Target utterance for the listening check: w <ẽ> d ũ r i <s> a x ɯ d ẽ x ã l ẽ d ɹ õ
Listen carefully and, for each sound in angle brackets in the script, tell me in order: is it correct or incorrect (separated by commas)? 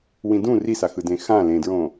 incorrect, correct